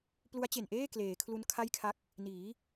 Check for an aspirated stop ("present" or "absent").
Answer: present